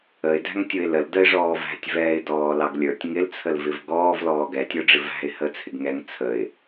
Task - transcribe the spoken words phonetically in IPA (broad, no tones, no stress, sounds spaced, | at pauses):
ə ɪ̯ d æ̤ ŋ tʲ ʊ ɪ̯ l ə l d ə ɪ̯ ʐ ɔː v æ̤ tʲ v ɛː ɪ̯ d ɔː l ɑ ɡ lʲ ə˞ tʲ ŋ ɪ l t͡sʰ ə l v ɪ v ɡ ɔː v l ɔː ɡ ɛ tʲ ə˞ ɖ͡ʐ ɪ v æ̤ ɪ̯ h ə t͡sʰ ɪ ɡ ŋ ɛ ŋ t͡sʰ ə ɪ̯